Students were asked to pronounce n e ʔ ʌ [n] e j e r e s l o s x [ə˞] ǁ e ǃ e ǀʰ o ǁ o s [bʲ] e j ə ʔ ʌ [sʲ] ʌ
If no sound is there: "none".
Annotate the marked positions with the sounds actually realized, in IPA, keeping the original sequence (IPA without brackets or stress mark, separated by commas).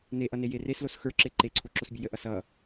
n, ə˞, bʲ, s